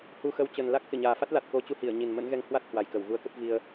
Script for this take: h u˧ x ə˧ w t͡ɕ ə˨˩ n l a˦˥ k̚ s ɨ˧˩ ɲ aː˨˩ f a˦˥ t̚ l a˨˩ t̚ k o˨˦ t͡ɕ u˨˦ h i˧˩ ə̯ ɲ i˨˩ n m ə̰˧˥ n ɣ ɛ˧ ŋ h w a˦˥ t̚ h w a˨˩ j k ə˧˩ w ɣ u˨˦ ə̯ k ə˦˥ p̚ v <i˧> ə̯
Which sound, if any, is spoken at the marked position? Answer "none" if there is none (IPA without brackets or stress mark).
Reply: i˧